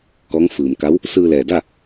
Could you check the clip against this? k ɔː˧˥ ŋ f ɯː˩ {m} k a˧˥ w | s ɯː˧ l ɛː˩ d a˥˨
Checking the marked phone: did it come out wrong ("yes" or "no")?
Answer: no